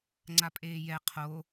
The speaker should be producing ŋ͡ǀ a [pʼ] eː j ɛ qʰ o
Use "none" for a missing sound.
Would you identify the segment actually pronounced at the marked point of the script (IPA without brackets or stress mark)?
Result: pʼ